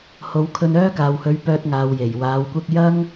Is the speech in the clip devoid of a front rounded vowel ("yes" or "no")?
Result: no